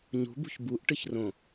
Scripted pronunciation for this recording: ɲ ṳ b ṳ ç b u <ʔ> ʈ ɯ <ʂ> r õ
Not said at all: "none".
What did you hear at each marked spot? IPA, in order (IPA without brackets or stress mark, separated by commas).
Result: ʔ, ç